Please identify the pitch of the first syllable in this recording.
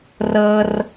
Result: high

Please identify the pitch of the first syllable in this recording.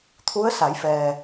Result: rising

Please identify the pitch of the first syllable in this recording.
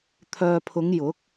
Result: low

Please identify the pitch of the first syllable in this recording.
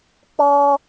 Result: high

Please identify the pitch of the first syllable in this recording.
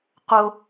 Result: high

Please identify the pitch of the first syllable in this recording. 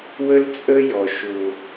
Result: high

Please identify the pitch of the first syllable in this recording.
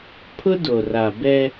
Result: high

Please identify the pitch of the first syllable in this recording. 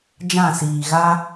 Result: falling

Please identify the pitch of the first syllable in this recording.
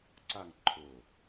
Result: falling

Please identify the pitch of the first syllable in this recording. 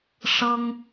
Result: high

